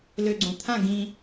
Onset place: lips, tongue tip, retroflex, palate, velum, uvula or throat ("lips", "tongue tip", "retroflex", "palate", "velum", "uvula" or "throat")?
tongue tip